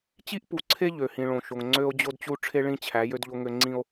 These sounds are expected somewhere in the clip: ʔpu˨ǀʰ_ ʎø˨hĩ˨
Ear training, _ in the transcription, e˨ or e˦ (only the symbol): e˦